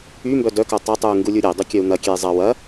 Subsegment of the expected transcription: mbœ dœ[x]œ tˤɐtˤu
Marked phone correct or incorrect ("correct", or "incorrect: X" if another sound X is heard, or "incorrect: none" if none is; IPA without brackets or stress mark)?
incorrect: k